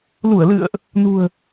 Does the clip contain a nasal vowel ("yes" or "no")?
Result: no